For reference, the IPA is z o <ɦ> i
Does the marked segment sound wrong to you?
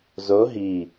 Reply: no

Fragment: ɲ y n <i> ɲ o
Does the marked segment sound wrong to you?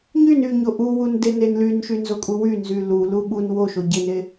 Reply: yes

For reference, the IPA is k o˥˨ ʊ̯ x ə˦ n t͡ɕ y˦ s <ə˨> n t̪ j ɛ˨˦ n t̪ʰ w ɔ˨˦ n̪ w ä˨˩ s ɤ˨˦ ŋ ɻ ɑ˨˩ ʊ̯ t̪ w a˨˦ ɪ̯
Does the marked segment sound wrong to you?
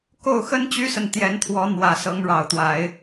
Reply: no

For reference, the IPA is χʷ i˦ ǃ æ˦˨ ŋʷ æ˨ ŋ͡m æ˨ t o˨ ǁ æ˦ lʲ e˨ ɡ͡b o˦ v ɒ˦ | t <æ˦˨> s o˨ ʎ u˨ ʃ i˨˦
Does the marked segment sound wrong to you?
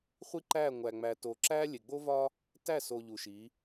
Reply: no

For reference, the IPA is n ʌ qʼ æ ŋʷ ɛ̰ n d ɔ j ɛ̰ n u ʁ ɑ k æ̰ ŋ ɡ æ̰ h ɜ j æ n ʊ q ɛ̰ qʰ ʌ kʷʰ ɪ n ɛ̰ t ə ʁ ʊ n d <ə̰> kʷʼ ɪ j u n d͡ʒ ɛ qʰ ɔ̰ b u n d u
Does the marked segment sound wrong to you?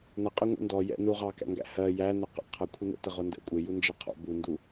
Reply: yes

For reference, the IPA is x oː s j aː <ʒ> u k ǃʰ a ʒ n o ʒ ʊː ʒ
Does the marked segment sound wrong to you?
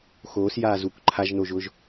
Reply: yes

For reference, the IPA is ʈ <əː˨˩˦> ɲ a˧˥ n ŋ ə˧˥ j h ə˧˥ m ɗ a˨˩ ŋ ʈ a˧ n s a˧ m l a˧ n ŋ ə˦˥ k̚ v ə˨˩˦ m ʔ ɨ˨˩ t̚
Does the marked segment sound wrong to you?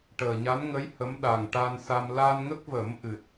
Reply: yes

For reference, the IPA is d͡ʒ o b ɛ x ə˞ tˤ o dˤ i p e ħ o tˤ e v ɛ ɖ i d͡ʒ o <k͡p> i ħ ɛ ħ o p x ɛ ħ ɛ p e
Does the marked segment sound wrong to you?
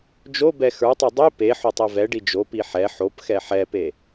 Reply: yes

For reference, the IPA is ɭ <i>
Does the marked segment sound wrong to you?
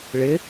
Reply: yes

